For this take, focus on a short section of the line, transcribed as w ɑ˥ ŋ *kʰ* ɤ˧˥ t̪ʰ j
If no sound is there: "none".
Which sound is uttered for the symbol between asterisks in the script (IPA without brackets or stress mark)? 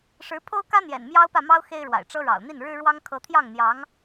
kʰ